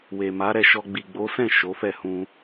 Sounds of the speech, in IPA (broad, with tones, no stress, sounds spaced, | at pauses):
w e˨ m a˨˦ ɾ ɛ˦˨ ʃ ɔ˧ ɡ͡b i˨ ɡ͡b o˨˦ s ɛ̃˦˨ ʃ o˨˦ f ɛ˦˨ h ũ˧